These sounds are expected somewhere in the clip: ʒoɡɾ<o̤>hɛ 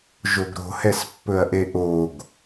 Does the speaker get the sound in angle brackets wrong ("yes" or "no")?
no